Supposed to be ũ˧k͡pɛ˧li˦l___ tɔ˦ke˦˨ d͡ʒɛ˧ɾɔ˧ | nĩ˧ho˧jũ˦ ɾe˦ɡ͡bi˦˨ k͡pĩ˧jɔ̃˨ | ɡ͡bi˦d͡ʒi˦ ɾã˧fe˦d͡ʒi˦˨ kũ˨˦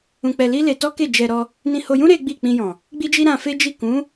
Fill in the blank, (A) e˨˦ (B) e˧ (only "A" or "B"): B